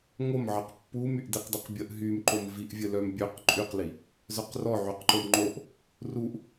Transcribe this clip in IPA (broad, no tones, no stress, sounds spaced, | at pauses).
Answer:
ŋ o m ʕ ɘ q pː u m y ʔ d i q d ɘ q bʲ ə ʔ ɦ y m ǃ o m v i ʔ vʲ ɘ l œ m bʲ ø q ǃʼ y q l i | z œ q r ɔ ʕ y q ǃ o m ŋ͡ǃ o ʔ | r u ʔ